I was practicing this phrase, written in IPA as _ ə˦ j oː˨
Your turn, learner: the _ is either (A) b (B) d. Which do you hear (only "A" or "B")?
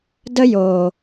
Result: B